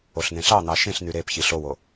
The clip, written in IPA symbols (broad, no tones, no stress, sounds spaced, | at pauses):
o ɬ n̪ ẽ ɬ ɑ n̪ ɑ ʃ ẽ ɬ n̪ y ɾ e p ç i ɬ o w o